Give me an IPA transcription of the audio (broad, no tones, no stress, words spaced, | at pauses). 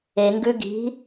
eŋɡʉ ɡi̤